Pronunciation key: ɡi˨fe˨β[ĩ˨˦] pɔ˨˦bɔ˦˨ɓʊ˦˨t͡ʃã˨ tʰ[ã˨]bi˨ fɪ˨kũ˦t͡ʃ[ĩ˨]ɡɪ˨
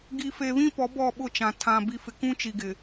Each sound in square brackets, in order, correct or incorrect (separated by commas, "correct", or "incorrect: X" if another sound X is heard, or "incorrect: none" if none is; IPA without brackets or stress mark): incorrect: ĩ˦, correct, incorrect: i˨